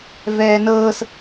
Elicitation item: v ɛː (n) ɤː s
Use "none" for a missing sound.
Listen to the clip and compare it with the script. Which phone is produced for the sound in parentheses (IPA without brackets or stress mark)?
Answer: n